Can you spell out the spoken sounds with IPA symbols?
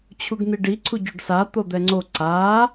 t͡ɕʰ u ɡ n̪ i ɖ i ǀʰ u ɟ o ɖ s a t̪ o d̪ ɛ ŋ͡ǀ o ǀ a

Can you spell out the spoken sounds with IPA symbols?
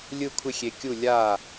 lʲ ɯ˥˩ kʷʰ ɪ˥˩ xʲ e˨ kʲ u˥˩ lʲ a˥˩

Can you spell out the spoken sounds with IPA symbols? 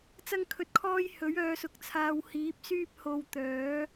t͡s ɐ˥ ŋ kʰ ɵ˧ t̚ kʰ ɔː˥ j h ɵ˨˥ ɥ œː˧ s ʊ˨˥ k̚ t͡sʰ aː˧ w h iː˨˥ p̚ s yː˥ p̚ h o˧ w t̪ œː˨˥

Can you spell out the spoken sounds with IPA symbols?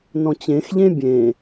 n ɔ̃ t͡ɕ ẽ x ʎ ẽ bʲ ẽ

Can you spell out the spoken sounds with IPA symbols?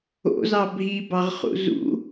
o̰ z ɑ bʱ i b ɑ ʁ χ ṵ z ṵ

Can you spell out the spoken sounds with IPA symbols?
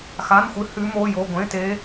x a˧˥˧ n xʷ ɨ˦˥ h ʉ˦˥ m o˧˥˧ j o˧˥˧ ɡʷ ẽ˧˥˧ t e˦˥

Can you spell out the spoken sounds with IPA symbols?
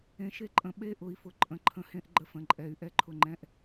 ẽ˨ ʃ e˦ ǃʼ ə̃˨ ɓ e˦ ʔ ʊ˨ i̯ f ʊ˨ ǃʼ ə̃˨ ǃʰ ə̃˨ h ẽ˦ ʔ ɡ͡ǃ ə˦ f ə̃˨ ǃʼ ɛ˨ y̯ ʔ ɛ˦ ǃʰ ʊ˦ ŋ͡ǃ ɛ̃˦ ʔ

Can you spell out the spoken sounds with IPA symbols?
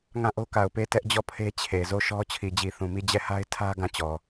ŋ ã˦˨ ʔ o˦ k a˨ ʊ̯ p e˦˨ t ɛ˦ ʔ d͡ʑ ɔ˦˨ pʰ e˦ t͡ɕʰ e˨ z o˦˨ ʃ ɔ˦ t͡ɕʰ i˨ d͡ʑ i˨ θ ũ˨ m i˦˨ d͡ʑ ɛ˦˨ h a˦ ɪ̯ tʰ ä˦ ɡ ã˦˨ t͡ɕ ɔ˨

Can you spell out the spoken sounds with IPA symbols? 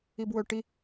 i b w ɵ ʈ i

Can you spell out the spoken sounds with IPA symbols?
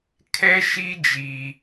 kʰ ɛ˦ ʃ i˦ d͡ʒ i˦

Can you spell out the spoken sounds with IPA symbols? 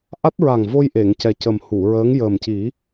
ʔ a˦˥ t̚ ɹ a˨˩ ŋ v o˧ j ʔ e˨˩˨ ŋ c ɛ˨˩ c ə˨˩ m h u˨˩˨ ɹ əː˧˥ ŋ j əː˨˩ m c i˨˩˦

